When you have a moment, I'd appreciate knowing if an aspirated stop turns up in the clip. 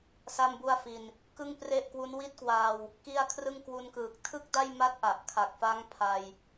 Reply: yes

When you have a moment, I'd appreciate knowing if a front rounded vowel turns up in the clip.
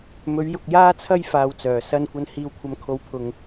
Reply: yes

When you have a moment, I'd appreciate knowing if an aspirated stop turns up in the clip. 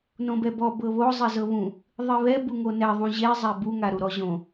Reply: no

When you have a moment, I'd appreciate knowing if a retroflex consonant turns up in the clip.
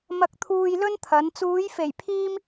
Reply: no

